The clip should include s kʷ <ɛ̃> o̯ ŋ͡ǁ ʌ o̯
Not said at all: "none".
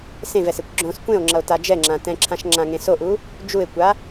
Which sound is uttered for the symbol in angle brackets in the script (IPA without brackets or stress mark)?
ẽ